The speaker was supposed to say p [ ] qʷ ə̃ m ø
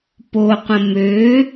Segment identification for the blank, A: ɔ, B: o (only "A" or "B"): B